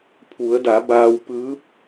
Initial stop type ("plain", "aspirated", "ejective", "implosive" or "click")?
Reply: aspirated